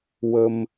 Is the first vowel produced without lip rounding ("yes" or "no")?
yes